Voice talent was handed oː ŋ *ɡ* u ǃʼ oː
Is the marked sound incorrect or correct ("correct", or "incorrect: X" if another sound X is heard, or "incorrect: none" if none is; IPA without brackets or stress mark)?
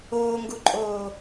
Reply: correct